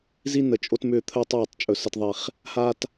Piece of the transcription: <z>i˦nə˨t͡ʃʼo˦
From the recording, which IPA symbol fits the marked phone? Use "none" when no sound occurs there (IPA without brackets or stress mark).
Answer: z